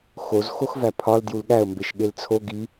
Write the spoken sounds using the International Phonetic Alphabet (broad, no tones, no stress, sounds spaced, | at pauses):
x o z x o x v æ pʰ ɒ l d j u l ɠ æ ə̯ m b e ʃ ɠ e l t͡sʰ o ɡ i